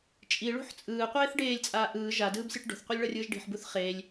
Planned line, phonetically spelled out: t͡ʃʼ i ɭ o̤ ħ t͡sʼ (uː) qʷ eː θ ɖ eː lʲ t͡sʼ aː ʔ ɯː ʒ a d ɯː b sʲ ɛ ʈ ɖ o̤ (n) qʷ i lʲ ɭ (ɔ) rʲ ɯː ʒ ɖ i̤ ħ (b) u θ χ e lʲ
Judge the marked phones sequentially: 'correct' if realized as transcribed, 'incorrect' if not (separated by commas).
incorrect, incorrect, incorrect, correct